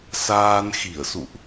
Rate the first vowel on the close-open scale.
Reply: open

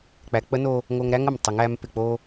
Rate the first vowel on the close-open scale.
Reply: open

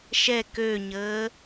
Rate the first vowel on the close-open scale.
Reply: mid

